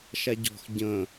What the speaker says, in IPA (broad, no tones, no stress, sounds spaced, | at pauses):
ʃ a ɟ ɔ̤ x ɟ ə̃